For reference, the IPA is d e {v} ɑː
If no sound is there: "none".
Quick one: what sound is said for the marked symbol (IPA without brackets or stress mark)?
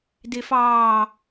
f